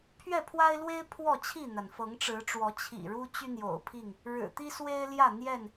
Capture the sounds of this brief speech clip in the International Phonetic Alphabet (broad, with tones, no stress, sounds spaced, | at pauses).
pʰ ɥ ɛ˥˨ pʰ w a˦ ɪ̯ l w e˦ ɪ̯ pʰ w ɔ˥˨ t͡ɕʰ i˥˨ n̪ a˩ n f ɤ˨˦ ŋ ʈ͡ʂ ɻ̩˨˦ ʈ͡ʂ w ɔ˨˦ t͡ɕʰ ḭ˨˩ ɻ u˦ t͡ɕ y˦ n̪ j o̰˨˩ ʊ̯ pʰ i˥˨ ŋ | ɻ ɻ̩˨˩ t̪ i˦ s w e˦ ɪ̯ l j ä˥˨ n̪ j ɛ˥˨ n